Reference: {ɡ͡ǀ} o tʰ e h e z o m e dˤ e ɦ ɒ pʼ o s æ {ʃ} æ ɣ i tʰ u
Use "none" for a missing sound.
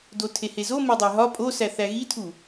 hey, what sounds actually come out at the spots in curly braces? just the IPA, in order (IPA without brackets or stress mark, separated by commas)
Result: d, θ